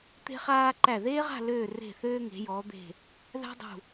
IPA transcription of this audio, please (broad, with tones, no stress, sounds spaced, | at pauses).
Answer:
t̪ e̤˧ χ aː˧ ǃ æ˧˩ ð eː˥ ʁ a̤˥˧ l øː˧˩ r e̤˧˩ θ øː˧ ŋ e̤˩˧ j ɔ˩˧ d̪ e̤˧˩ | ð æ̤˥ dˤ ṳ˧˩